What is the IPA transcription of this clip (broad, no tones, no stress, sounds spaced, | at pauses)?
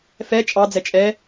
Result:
f ɛ t͡ʃʼ ɑ d͡z ɛ t͡ʃʼ ɛ